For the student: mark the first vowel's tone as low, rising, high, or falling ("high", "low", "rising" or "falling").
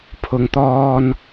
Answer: low